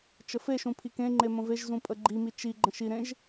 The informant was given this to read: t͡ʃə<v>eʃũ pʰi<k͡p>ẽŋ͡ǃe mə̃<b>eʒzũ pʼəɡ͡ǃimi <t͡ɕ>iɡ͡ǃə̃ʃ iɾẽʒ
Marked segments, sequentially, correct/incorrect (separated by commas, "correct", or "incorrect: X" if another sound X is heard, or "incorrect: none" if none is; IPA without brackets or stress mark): incorrect: f, incorrect: k, incorrect: v, incorrect: t͡ʃ